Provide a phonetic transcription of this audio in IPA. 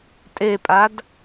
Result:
tʼ e pʼ a d

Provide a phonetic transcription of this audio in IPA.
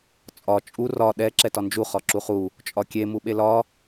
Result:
t͡sʼ ɒ t͡ʃʼ u r ɒ ɗ ɛ ǁ ɛ t ɒ n d͡ʒ u χ ɒ ǁ u χ u | t͡ʃʼ ɒ kʲ e m u ɓ e l ɒ

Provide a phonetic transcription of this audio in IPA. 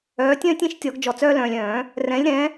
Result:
œː˩˥ tʲ œ̃ː˦ tʲ ĩ˩˥ ʃ tʲ ɔ˨˩˦ ɡ d͡ʒ ɔ˨ t͡s œː˦ l œ̃ː˨ lʲ œ̃ː˨˩˦ | r ɛ̃˩˥ lʲ ɾ ɛ̃˩˥

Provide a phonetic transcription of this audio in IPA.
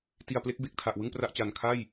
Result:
t i˨˩ a̯ p l e˦˥ k̚ b e˨˩ k̚ tʰ a˨˩ ʔ w ɯ˥˩ ŋ p r a˥˩ ʔ t͡ɕ a˨˩ n kʰ a˥˩ j

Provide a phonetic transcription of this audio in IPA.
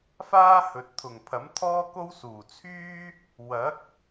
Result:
f aː˥ h ɵ˨ t̚ t̪ʰ ʊ˨˩ ŋ pʰ ɐ˨˥ m t̪ʰ ɔː˥ k o˥ w s uː˨˩ t͡sʰ yː˥ | w ɐ˨˥ k̚

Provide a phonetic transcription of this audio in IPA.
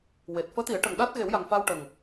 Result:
w e˨˩ t̚ f əː˧˥ t̪ i˨˩˦ ə̯ ʈ ə˨˩ ŋ ɗ a˦˥ t̚ ɣ e˨˩˦ w j a˨˩ ŋ f a˧ w ʈ ə˨˩ ŋ

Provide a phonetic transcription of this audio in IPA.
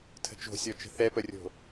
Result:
tʰ ə̤ t͡ʃ o̤ sʲ ɔ t͡ʃ ə̤ θ ɛ p ə rʲ o̤

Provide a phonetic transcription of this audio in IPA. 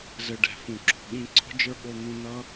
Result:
z ɘ˧ ɖ ɛ̤˨ f ũ˨ ǁ ɔ̤˨ ɠ ĩ˦ ǀ ɔ̤˦ d͡ʒ ə˞˦ ɠ o˧ n̪ ũ˧ n ʌ˦

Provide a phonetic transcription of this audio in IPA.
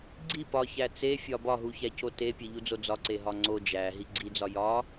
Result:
ɡ͡ǀ i p ɒ ç æ t͡s e fʲ ɒ b ɒ ɦ u ç æ c o t e pʲ e ʎ u d͡z o d͡z ɒ ǀ e ɦ ɒ ŋ͡ǀ o d͡ʒ æ ɦ i ɡ͡ǀ i d͡z ɒ j ɒ

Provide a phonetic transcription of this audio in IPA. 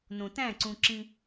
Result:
n õ t æ̃ ǀ ũ ǁ ĩ

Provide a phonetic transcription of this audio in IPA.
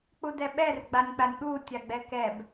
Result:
k͡p u d ɛ ɓ ɛ r ɡ͡b a nʲ k͡p a nʲ ɠ u tʲ a ɡ͡b ɛ k ɛ b

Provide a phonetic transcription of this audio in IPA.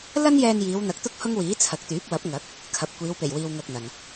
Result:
l ɐ˥ n j ɛː˧ n j iː˨˧ w n̪ ɐ˨˥ k̚ t̪ ʊ˥ k̚ h ʊ˥ ŋ w iː˨˥ t͡sʰ ɐ˨ k̚ t̪ yː˨˥ p̚ w ɐ˨˥ p̚ ŋ ɐ˨˥ k̚ | kʰ ɐ˨ p̚ kʷ iː˨˧ w p e˨˩ j w iː˨ w ŋ ɐ˧ k̚ n̪ ɐ˨ n

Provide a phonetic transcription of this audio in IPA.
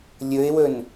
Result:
lʲ ɵ ɪ̯ w ɵ n

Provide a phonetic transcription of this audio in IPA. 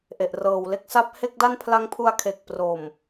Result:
ʔ e˨˩ ʔ r ɤː˨˩ w l e˥˩ k̚ s a˦˥ p̚ h e˥˩ k̚ d a˥˩ n pʰ l a˦˥ ŋ pʰ u˧ a̯ kʰ e˨˩ k̚ p r o˨˩ m

